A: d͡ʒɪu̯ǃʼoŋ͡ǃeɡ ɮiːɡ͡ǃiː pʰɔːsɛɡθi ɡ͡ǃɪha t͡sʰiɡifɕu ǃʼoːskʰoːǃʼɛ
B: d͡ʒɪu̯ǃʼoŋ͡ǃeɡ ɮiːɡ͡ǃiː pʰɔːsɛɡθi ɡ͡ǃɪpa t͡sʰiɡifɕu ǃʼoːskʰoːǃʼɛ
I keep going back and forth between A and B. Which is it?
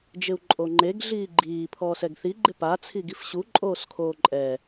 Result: B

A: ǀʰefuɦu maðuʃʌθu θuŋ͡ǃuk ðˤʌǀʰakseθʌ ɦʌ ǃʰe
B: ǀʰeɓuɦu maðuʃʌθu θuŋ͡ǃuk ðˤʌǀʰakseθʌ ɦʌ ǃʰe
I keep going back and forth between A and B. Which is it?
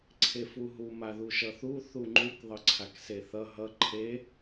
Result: A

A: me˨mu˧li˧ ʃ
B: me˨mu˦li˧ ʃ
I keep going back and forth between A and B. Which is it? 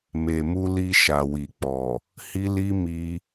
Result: A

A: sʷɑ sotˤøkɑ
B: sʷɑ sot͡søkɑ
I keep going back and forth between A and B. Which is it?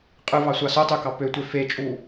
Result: A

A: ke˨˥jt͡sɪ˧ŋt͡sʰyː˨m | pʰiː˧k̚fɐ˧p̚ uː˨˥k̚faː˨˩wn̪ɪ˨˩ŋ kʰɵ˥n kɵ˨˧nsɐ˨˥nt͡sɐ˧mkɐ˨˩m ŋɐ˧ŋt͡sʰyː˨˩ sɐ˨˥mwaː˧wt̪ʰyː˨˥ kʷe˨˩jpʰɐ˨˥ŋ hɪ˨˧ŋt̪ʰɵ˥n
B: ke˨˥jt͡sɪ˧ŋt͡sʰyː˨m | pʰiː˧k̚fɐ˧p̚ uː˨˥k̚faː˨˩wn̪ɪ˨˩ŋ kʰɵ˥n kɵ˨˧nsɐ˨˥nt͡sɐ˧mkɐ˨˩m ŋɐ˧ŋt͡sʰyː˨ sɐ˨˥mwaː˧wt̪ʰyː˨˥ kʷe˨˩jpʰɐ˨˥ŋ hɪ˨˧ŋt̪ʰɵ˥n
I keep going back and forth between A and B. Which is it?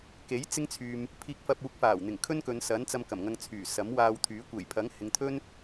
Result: A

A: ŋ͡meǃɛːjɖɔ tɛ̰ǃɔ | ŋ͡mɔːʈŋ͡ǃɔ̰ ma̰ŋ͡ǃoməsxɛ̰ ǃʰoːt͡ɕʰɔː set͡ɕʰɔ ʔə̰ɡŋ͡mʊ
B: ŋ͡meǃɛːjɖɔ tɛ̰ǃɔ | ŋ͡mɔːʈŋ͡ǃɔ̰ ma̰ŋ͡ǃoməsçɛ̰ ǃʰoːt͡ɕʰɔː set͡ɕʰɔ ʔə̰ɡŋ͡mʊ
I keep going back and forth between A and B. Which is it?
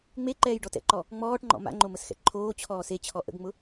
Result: A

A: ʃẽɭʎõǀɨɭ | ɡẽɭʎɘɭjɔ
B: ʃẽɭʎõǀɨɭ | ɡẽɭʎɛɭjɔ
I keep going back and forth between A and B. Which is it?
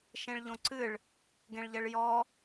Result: A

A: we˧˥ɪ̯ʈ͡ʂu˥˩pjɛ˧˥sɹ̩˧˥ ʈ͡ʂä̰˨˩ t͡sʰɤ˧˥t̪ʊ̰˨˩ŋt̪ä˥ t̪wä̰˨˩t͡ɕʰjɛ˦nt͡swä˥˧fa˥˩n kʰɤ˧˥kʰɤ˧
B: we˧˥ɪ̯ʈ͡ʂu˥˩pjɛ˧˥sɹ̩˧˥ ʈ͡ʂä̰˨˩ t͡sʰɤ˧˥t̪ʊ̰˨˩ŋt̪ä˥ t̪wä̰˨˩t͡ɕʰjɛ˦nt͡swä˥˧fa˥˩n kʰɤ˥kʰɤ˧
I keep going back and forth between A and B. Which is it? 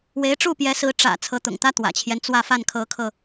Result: A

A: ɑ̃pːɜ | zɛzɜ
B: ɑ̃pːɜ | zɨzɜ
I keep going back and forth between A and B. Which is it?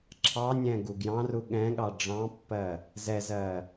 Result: A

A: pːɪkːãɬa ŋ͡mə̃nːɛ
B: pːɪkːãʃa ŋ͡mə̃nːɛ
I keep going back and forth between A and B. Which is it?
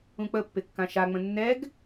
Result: B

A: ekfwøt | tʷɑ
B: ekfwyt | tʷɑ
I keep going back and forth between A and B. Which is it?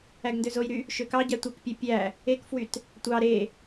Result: B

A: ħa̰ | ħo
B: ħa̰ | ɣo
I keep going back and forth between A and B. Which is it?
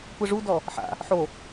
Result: A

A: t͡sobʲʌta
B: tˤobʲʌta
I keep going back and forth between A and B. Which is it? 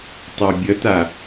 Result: B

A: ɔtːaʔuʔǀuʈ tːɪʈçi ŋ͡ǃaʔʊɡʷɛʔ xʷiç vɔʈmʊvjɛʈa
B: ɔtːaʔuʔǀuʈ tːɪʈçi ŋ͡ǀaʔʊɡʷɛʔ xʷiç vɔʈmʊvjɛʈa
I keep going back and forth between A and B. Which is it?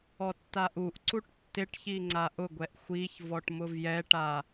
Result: B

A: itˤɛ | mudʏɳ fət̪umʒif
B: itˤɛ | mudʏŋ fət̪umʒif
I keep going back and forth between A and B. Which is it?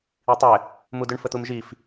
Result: A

